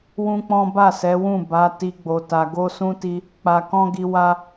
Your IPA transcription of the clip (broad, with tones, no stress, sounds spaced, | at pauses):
w ũ˦ k͡p ɔ̃˦ b a˦˨ s ɛ˨˦ w ũ˦˨ b a˨˦ t i˦ ɡ͡b o˧ t a˧ ɡ o˦ s ũ˦ t i˦ | k͡p a˧ k ɔ̃˦ ɡ i˧ w a˦